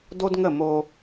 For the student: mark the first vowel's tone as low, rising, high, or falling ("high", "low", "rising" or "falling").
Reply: high